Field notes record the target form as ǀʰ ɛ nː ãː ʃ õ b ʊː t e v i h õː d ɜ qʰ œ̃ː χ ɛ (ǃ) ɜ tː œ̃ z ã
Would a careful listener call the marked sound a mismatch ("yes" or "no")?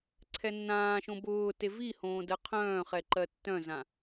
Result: no